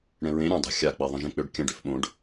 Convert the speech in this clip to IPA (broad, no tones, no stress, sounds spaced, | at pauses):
ɽ ɛ̃ ɹ ẽ ɾʲ ɛ̃ dˤ a̤ xʲ a k͡p e ðˤ ə̃ ʒ ẽ k͡p ø ɖ kʲ ə̃ ɖ ø f ɓ õ ɖ